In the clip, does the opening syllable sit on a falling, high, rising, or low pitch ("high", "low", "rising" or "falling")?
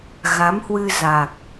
rising